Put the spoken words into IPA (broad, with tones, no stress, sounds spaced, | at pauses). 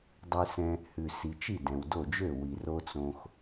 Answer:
dˤ ʉ˧ s ɛ̃˧ | h ʉ˩ s i˩ t͡ʃ i˥˩ d ɛ̃˩ w d o˥˩ d͡ʒ ø˥˩ w i˩ r o˥ t͡s õ˧ x